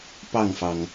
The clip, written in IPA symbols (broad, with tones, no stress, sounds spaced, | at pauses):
p ɑ˥˩ ŋ f ɑ˩ ŋ